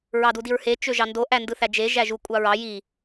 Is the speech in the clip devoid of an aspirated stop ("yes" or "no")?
yes